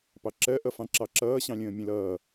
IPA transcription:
pɑǁɜʔʌ fɑ̃ǁɑǁʌːɕɑ̃ lʲə̃ːmʲə̃lʌː

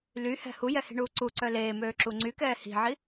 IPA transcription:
lyhɛ̤ hujɛhi̤ɳuː ǀuǀœ leːmøːǁu ŋ͡ǀykɛː hi̤ʕi

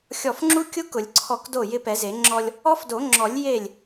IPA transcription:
xʲɔ˧˩fŋ͡ǁu˦˥kʲʊ˦˥kʊ˨˩˦lʲ ǀʰɔ˧˩k do˥˩jɪ˦˥pɛ˨˩˦ze˨˩˦ ŋ͡ǁɔ˧lʲ | ɔ˦˥fdo˨˩˦ŋ͡ǁɔ˨˩˦lʲ je˥˩lʲ

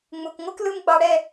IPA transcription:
ŋ͡mu˨k ŋʷɯ˦klɯ˦m ɡ͡bɑ˧ɽɛ˦˨

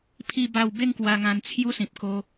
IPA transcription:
pʰi˥˧ba˥˧w be˥˧ŋkwa˧ ŋã˧nt͡sʰju˦sĩ˨p̚ko˧

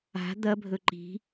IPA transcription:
a̤ d̪ɐbʱɵ ǃi̤

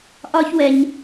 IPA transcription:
ʔɒ˦çwɛ˧ɲ

